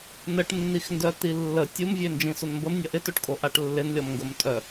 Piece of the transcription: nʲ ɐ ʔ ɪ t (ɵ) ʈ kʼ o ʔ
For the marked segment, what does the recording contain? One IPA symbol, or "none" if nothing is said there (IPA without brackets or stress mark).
o